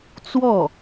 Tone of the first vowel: falling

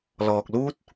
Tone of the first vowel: low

